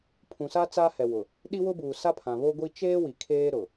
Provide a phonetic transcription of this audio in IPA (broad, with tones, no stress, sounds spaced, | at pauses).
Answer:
pʰ ũ˨ s a˦ t͡s aː˦ h ɛ˨ w ʊ˨ | ɗ i˦ w ʊ˦ b uː˨ s a˦ pʰ ã˨ β o˦ ɡʷ i˦ t͡ʃ eː˦ w i˨ kʰ eː˦ ɾ ʊ˨